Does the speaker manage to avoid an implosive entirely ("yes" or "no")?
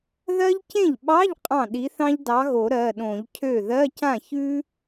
no